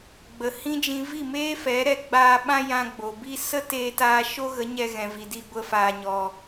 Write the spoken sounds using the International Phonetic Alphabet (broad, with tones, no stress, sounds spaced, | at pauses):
ɡ͡b ə˨ h ĩ˦ d͡ʒ ĩ˧ v i˦˨ m eː˦ f ɛ˨˦ ɾ ɛ˧ ɡ͡b aː˧ ɓ ã˦ j ã˧ ɡ͡b o˨ b i˦ s ə˦ t eː˧ t aː˧ ʃ o˦ ɣ ə˨˦ ɲ ɛ˧ ɣ ɛ̃˨ v i˨ d i˧ ɡʷ ə˦ f aː˧ ɲ ɔ˧